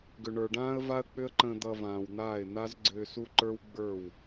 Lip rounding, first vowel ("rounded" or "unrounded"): rounded